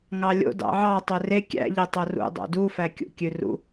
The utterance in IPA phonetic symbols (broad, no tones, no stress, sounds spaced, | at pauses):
ŋ ɑ lʲ o̰ d ɑ̰ ʕ ɑ tˤ ø r e kʲ æ̰ ʎ e tˤ o r ṵ dˤ o̰ d u f æ kʲ ṵ kʲ ʉ r ṵ